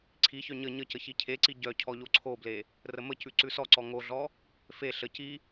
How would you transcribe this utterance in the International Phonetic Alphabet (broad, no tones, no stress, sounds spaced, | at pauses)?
ǀʰ i ç œ ɲ ə ɲ ə c ə ç i cʰ e ǀ i ɟ œ cʰ ɔ ʎ o ǀʰ o b l e | r ə m ə c ʉ ǀ ʉ s ɔ ǀ ɔ ŋ o ɮ ɔ | f e ɬ ə c i